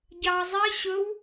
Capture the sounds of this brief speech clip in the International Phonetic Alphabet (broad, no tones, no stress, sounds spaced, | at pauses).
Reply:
ɟ ɑ zˤ i ɕ ɵ w